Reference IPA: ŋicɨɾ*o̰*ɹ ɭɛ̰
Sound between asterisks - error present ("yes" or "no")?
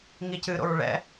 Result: no